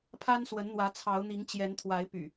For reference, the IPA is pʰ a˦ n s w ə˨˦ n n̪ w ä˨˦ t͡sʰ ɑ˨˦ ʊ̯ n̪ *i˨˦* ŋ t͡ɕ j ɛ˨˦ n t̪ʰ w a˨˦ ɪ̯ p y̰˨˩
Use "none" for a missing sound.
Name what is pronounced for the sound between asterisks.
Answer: i˨˦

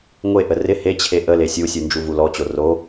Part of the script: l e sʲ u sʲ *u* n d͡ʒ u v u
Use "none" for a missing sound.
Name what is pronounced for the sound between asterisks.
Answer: u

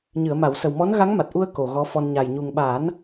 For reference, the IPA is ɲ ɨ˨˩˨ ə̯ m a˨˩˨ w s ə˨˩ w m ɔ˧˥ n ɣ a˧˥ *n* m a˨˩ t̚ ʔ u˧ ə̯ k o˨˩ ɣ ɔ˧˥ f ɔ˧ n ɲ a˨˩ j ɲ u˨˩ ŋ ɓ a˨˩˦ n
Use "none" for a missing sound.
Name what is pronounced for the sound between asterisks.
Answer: ŋ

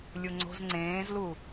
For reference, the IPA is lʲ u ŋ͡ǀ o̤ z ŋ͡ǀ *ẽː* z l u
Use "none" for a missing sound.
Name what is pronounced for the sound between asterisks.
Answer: ẽː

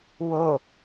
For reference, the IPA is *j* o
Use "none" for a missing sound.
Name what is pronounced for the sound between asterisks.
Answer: w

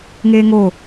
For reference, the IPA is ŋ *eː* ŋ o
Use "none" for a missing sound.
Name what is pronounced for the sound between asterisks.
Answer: eː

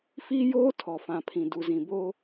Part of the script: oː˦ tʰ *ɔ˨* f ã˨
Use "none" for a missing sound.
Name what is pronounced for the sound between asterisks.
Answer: ɔ˨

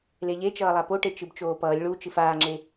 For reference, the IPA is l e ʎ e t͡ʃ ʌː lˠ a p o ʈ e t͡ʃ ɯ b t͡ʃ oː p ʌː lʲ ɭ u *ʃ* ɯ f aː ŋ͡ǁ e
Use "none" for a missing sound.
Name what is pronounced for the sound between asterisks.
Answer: t͡ʃ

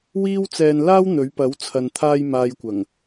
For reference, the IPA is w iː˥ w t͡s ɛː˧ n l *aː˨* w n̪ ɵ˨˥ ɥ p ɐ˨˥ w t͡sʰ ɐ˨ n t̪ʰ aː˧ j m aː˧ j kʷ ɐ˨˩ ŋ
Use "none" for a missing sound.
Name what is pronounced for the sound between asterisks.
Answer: aː˥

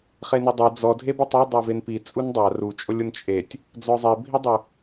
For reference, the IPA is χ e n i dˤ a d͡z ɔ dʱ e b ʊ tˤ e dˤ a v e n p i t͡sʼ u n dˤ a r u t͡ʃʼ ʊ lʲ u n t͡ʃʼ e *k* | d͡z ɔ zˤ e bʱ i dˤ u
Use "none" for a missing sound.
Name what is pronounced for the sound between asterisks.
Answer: tʲ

